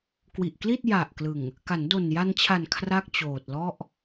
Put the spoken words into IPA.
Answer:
k w i˨˩ ʔ k l i˥˩ t̚ j a˨˩ ʔ k l ɯ˨˩ ŋ | k a˩˦ n d o˨˩ n j a˧ n t͡ɕʰ a˨˩ n kʰ r a˥˩ k̚ t͡ɕ oː˨˩ t̚ l ɔ˥˩ ʔ

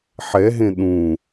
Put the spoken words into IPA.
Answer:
ħ ɛ ɦ ẽ ɗ ũ

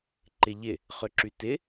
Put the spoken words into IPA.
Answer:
ǃ ɪ ʎ ɪ | χ ʏ ǁ y t ɪ

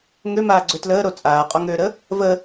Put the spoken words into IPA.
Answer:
ŋ ø m aː ɡ͡ǀ ø t l əː ɾ o t͡sʼ aː qʼ ɔ ŋ øː ɾ ə | v ə

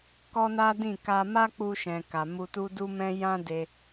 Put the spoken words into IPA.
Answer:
k ɔ˦ n a˦ d ĩ˦˨ k a˧ m a˦ k͡p u˧ ʃ ɛ̃˨ k a˨ m u˧ t u˦ d u˦ m ɛ̃˦ j ã˦ d e˧

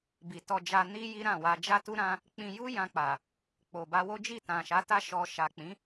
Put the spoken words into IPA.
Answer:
b i˨ t ɔ˧ d͡ʒ a˧ n i˦ j i˦ ɾ ã˦˨ w a˧ d͡ʒ a˦ t u˦ ɾ ã˦ | k͡p ĩ˧ j u˦ j ã˧ k͡p a˨ | k͡p o˨ b a˧ w o˦ d͡ʒ i˦˨ t ã˨ ʃ a˨˦ t a˦ ʃ ɔ˧ ʃ a˨ k͡p ĩ˨˦

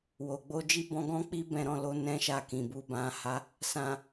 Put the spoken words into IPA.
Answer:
w o˨ ɡ͡b o˧ d͡ʒ i˦ b ɔ̃˧ ɡ ɔ̃˦ k͡p i˦ b ɛ̃˧ ɾ ɔ̃˧ l o˧ n ɛ̃˦ ʃ a˦˨ k ĩ˨ b u˨˦ b ã˧ h a˦ | s ã˨

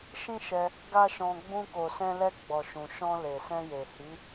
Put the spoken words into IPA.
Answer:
ʃ ĩ˦ ʃ ɛ˧ | ɡ a˦ ʃ ɔ̃˧ ɡ͡b ũ˧ k o˨ s ɛ̃˧ l ɛ˧ ɡ͡b ɔ˨ ʃ ũ˨ ʃ ɔ̃˧ l e˨ s ɛ̃˧ j e˨ h i˨˦

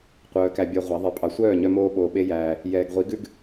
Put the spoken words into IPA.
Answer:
qʷ œː˨ k æ˨ bʲ ɛ˧ ʁʷ æ˨˦ ðˤ e˧ pʼ ɑ˨ sʷ œː˦˨ ɲ œ˧ m oː˧ ɓ oː˨ ɓ e˧ j æː˨ | j ɛː˨ ɡ ʁʷ i˨˦ ɡ ʉ˦ ɡ

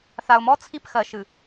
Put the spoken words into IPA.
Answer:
θ a˨ ʊ̯ m ɔ˦ t͡sʰ i˦˨ p x ɜ˨ ʃ ɨ˨

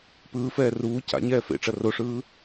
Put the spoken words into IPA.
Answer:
p ɯː f ɛː r uː c a̰ ɲ ɛː f ḛ ʈ͡ʂ ɐ r o ʂ ɯː

